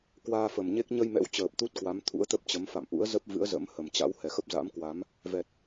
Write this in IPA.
k w aː˧ f ə˨˩ m ɲ e˦˥ k̚ ɲ ə˧ j m ɛ̰˧˥ w t͡ɕ əː˨˩ p̚ t̪ u˦˥ t̚ k w a˨˦ m t̪ʰ ṵ˧˥ ə̯ t̪ ə˦˥ p̚ t͡ɕ ə˨˦ m f a̰˧˨ m ʔ ṵ˧˥ ə̯ z ə˦˥ p̚ v ɨ̰˧˥ ə̯ z ə̰˧˥ m h ə˨˩ m t͡ɕ a̰˧˥ w h ɛ˨˩ x ə˦˥ p̚ z a̰˧˥ m k w a˨˦ m | v ɛ˨˩ t̚

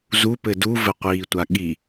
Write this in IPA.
z u p ɘ d u v ɘ qʷ iː tʷ a ɠ i

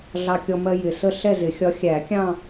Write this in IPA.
ɮ ɑ˧ kʲ ɔ˧ m ɜ˧ j ɪ˨˩ s ə˥˧ ɬ ɛ˥˧ z ɪ˨˩˦ xʲ ɒ˧˥ xʲ æ˨˩˦ kʲ ɑ̃˥˧

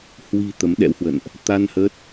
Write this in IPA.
h w i̤˨˩ t̪ ə˨˦ m ɗ ɛ̰˧˥ w h w ə̰˧˨ n ʔ | t̪ a˧ n h ə˦˥ t̚

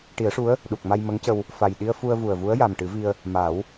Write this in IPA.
ʈ i˨˩˦ ə̯ ʂ u˧˥ ə̯ | ɗ u˨˩ k̚ m a˧ j m ə˧˥ ŋ c ə˧ w | f a˨˩ j ɗ i˧ ə̯ f u˧ ə̯ v u˨˩ ə̯ v u˧˥ ə̯ j a˨˩ m ʈ ɨ˨˩˦ v i˧ ə̯ | m a˨˩˦ w

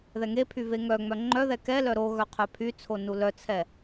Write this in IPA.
ð ɛ ŋ e pʰ y v e ŋ œ ŋ͡m œ ŋ͡ǃ œ ð ɛ k ɛ l œ ɾ o ɣ œ qʰ œ pʰ y t͡sʰ o n u l œ t͡sʰ ɛ

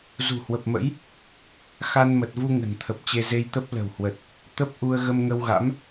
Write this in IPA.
z ṳ˨˩ h w ə˨˩ p̚ m ə̰˧˥ j | x a˧ n m ə˨˩ t̚ v u˧ ŋ ə̤˨˩ n t̪ʰ ə˨˩ p̚ t͡ɕ e˧ z e˧ j t̪ ə˦˥ p̚ l ə̤˨˩ w h w ə˨˩ t̚ | t̪ ə˦˥ p̚ ʔ u˧ ə̯ ɣ ə˧ m ŋ ə˧ w ɣ a̰˧˥ m

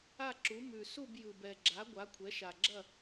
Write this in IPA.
a˥˨ ǁ u˩˥ m ʉ˨˩ s u˥˨ b j ɯ˨˩ b ɛ˨˩ ɡ͡ǁ a˩˥ ɡʷ a˩˥ kʷʰ ɛ˩˥ ʃ a˨˩ ɡ͡ǁ ɐ˥˨

